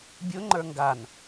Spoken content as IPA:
bʲ ʊ ŋ͡ǃ ə˞ ŋ ɡ a n

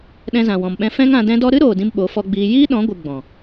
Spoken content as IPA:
ɗ ɛ̃˧ z ã˨ w ɔ̃˨ m ɓ ɛ̃˧ f ɛ̃˦ ŋ ã˧ d ɛ̃˦ d ɔ˦ ɾ ɨ˦ ɾ oː˨ d ĩ˧ m ɓ o˨˦ f ɔ˧ ɡ͡b iː˧ j iː˦ ɗ ɔ̃˨˦ ɡʷ ɨ˨ ɡ͡b ɔ̃˨

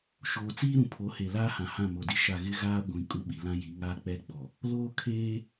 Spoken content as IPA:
ʃ oː˨ t͡s iː˦ ɾ ũ˨ pʰ o˨˦ h e˨ l aː˦ h ã˨ h ã˦˨ m o˨ d i˦ ʃ a˦˨ ɣ ɪ˦ ɣ aː˦ ɡʷ ĩ˨ kʼ u˦ ɓ i˨ l ã˦ j i˨˦ ŋ aː˦ k͡p ɛ˦ ɡ͡b ɔ˨ | l oː˦ kʰ eː˦

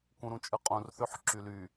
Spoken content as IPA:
k ũ ɾ ũ t͡ʃʼ ɯ qʼ ũ r θ ø ħ ǁ y l y

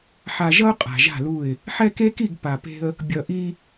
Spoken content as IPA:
ħ a˨ ʒ ʌ˦ ʊ̯ qʼ a̤˨ ʒ a̤˦˨ l u˦˨ ɪ̯ | ħ ɛ˦ k e˦ k i˦˨ ɡ p a˨ p e̤˦ ə̯ | bʲ ʌ˨ ʔ i˦

